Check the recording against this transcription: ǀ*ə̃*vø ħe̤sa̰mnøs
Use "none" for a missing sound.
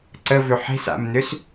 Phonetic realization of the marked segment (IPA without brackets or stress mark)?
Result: ə